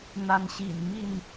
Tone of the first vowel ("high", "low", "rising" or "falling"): rising